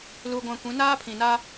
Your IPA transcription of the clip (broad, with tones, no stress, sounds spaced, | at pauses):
l u˦ ɡʷ ã˦ kʷ ĩ˨˦ n aː˦ pʰ ĩ˨ n a˦